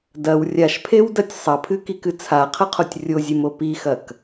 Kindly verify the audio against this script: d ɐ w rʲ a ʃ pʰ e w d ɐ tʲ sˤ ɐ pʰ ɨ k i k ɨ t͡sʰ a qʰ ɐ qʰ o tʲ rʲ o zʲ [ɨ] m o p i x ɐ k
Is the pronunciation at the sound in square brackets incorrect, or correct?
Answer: correct